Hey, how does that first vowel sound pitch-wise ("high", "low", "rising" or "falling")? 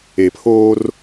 low